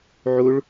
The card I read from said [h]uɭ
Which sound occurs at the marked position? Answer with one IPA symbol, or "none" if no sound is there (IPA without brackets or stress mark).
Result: ʕ